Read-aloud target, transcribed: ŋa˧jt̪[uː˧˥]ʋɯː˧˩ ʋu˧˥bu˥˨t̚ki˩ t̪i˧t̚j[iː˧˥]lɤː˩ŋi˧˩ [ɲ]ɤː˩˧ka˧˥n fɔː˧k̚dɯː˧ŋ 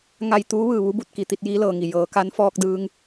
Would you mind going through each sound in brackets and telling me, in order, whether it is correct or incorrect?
correct, correct, incorrect

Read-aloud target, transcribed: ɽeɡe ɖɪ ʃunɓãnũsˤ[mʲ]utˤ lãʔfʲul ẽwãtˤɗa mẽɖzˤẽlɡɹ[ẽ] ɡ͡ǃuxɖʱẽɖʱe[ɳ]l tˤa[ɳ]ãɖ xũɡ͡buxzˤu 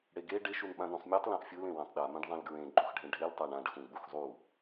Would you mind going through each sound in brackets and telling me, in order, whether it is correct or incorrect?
correct, correct, incorrect, correct

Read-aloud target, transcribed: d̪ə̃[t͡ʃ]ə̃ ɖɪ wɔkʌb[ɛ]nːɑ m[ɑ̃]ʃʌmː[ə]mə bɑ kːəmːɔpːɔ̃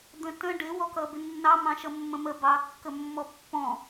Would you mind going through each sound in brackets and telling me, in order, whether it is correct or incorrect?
incorrect, incorrect, correct, incorrect

